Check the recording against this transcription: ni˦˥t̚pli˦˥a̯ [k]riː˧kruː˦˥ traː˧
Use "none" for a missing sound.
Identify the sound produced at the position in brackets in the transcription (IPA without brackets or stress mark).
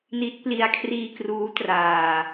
kʰ